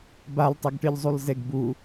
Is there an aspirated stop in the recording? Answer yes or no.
no